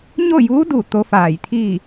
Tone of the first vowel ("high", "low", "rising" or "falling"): falling